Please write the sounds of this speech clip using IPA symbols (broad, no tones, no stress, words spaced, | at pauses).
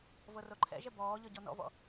vɤroǃʰɛ̰ʒɛ bɔː ʎɤɟɔnɔ̰vɔ̰